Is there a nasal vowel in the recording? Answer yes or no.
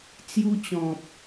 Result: yes